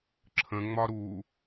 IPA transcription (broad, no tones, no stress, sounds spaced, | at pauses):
ǁʰ ə̃ ŋ͡m ɒ ɾ u